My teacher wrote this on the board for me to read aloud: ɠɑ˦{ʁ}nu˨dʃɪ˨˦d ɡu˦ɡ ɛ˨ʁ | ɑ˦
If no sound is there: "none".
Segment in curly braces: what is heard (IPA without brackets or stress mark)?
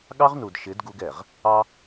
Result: ʁ